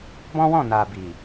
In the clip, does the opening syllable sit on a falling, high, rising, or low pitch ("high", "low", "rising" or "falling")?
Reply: high